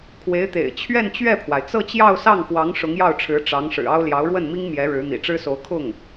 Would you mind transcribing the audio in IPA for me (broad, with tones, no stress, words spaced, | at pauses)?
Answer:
kʰwe˧˥ɪ̯t̪ḛ˨˩ɪ̯ t͡ɕʰɥɛ˥˧nt͡ɕɥɛ˥˩pʰwa˩ɪ̯ t͡sɤ˥˧t͡ɕjɑ˥˧ʊ̯sɑ˥˩ŋxwɑ˧˥ŋ ʂʊ˧˥ŋjɑ˥˩ʊ̯ʈ͡ʂʰɻ̩˧˥ ʈ͡ʂɑ˧˥ŋ ʂɻ̩˨˩ɑ˥ʊ̯ljɑ˧˥ʊ̯ ɻwə˥˩nmi˥ŋ mjɛ˧˥ɻɻ̩˧˥ n̪ḭ˨˩ʈ͡ʂɻ̩˥so˧˥ʊ̯ kʰʊ˥˩ŋ